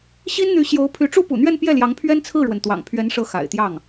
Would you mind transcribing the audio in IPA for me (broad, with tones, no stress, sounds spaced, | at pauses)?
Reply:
ɕ i˥ n n̪ y˧˥ ɕ j o˧˥ ʊ̯ pʰ y˧˥ ʈ͡ʂ u˥ p ṵ˨˩ n̪ ɥ ɛ˥˧ n p j ɛ˥˩ l j ɑ˧˥ ŋ pʰ ɥ ɛ˥ n t͡sʰ ɹ̩˥˩ ɻ w ə˩ n t̪ w ɑ̰˨˩ ŋ pʰ ɥ ɛ˧˥ n ʂ ɤ˧˥ x a̰˨˩ ɪ̯ t̪ j ɑ˥˩ ŋ